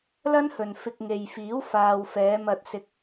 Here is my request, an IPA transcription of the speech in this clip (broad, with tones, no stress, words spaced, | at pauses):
lɐ˥nhɵ˨nfɪ˧k̚ ŋe˨jfiː˨˥w faː˨wfɛː˨˧mɐ˧t̚sɪ˧k̚